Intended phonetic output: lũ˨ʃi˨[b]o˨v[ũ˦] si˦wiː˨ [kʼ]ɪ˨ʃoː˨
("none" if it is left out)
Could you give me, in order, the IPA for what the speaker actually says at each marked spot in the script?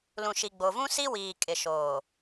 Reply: ɡ͡b, ũ˦, kʼ

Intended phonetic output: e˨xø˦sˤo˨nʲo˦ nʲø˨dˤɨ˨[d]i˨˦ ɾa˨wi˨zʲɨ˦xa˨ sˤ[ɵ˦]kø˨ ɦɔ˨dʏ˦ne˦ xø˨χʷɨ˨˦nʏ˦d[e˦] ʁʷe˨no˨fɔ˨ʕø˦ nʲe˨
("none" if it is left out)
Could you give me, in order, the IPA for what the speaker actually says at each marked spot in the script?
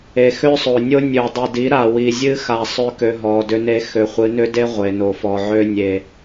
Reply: d, ø˦, e˦

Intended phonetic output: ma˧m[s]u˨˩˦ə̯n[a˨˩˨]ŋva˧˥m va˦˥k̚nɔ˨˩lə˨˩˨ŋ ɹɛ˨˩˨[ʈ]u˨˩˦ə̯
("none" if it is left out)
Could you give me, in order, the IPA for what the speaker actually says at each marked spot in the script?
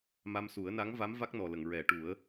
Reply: s, a˧˥, ʈ

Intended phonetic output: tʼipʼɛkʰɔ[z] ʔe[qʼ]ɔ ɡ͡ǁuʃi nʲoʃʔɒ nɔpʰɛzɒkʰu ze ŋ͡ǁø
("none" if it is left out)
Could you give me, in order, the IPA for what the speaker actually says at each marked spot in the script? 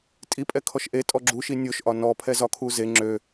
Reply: ʃ, tʼ

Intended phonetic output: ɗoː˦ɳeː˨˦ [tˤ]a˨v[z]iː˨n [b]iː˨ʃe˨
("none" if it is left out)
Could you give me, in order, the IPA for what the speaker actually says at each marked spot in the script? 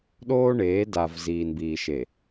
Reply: d, z, b

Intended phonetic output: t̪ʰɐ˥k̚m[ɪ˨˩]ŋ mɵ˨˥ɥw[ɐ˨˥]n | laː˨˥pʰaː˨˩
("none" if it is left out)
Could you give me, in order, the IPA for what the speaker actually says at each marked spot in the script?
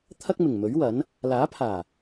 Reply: ɪ˨˩, ɐ˨˥

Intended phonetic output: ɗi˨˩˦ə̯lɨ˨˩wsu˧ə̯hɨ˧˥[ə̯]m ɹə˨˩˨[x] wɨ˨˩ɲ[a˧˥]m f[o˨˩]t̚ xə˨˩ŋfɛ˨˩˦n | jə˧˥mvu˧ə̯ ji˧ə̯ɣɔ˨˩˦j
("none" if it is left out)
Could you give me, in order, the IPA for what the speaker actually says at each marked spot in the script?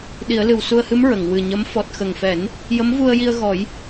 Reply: none, ŋ, ə˧˥, ɔ˨˩

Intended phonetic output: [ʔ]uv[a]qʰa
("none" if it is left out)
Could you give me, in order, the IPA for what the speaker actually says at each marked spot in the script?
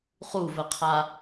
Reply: χ, ə

